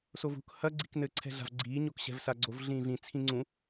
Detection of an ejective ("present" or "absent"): absent